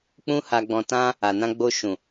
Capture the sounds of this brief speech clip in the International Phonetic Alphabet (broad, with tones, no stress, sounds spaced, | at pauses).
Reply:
k͡p ũ˦ h a˧ ɡ͡b ɔ̃˧ t ã˦ | a˨ n ã˧ ɡ͡b o˧ ʃ ũ˨